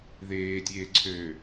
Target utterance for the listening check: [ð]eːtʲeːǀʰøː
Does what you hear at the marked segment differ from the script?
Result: no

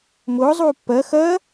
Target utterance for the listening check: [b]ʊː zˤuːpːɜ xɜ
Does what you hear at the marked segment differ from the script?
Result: yes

